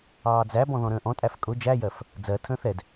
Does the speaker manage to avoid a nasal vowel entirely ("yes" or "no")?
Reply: no